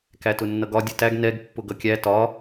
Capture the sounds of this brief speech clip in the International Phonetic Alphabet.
k æ t ʊ nː ʌ ɡ ɒ dʲ ʊ t æ ɡ n ɛ ɡ pː ʊ ɡ ʌ kʲ æ t ɒ

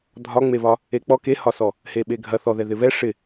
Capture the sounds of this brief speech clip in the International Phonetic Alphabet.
dʱ ɒ ŋ͡m e β ɒ | e k͡p ɔ k e h ɒ s ɔ | h e ɓ e ɡʱ ɐ θ ɔ ð ɛ ð ɪ β ɛ ʂ ɪ

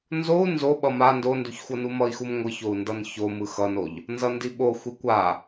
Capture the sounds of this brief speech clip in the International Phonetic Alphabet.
n z o u̯ n z o ɓ ʌ m a n d o n d u ç xʷ ʌ n u m ʌ i̯ x u m ŋʷ ɯ ç o u̯ n d ʌ n ç o m ɯ x ʌ n o ʎ | n z ʌ n d i ɓ o xʷ i kʷ a

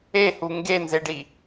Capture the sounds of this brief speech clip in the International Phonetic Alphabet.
e h u ŋ ɡ e n z e ɖ i

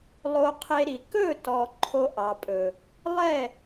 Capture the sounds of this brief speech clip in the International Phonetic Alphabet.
lˠ o˧ qʰ e˧ ɾ i˨ k ɵ˦˨ t ɔ˨ ǃʰ o˧ ʔ ɑ˨ pʼ ɵ˨ | lˠ ɛ˦˨

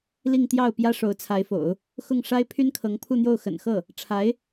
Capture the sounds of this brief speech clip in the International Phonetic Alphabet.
l i˥˧ ŋ t̪ j ɑ˥˩ ʊ̯ p j ä˥ ʂ o˧˥ ʊ̯ t͡sʰ a˧˥ ɪ̯ f o̰˨˩˦ ʊ̯ | x ʊ˥˩ ŋ ʂ a˥ ɪ̯ pʰ y˥ n kʰ ɤ˧˥ ŋ pʰ u˥˧ n̪ j o˥˩ ʊ̯ x ə̰˨˩ n x ɤ˥˩ | ʈ͡ʂʰ a˧˥ ɪ̯

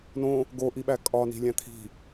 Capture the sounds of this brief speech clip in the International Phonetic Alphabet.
n õ | ɡ o ʔ i ɓ æ kʼ ɒ n i̤ lʲ æ̃ t̪ʰ i̤

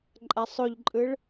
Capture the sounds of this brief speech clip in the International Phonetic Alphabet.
ǃʼ a sˤ o ʎ ǃʼ ɯ ɭ

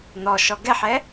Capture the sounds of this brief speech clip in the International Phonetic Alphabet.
n̪ ɔ ʃ ɔ ɡ ɛ ħ ɛ

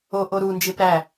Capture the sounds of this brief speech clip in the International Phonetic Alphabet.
o ʔ o ɾ u n d͡ʒ e p ɾ æ

